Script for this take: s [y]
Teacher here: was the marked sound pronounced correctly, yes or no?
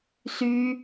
yes